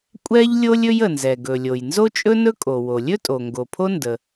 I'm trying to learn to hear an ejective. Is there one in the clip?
yes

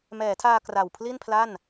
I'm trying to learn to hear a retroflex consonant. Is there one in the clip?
no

